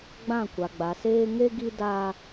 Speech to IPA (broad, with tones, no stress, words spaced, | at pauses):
ɡ͡bã˦˨kʷa˨ ɡ͡ba˨seː˦ ŋe˦ɡi˦ da˦